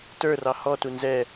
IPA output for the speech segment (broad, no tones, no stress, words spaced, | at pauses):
tə˞rɑ hɔtu nzɛ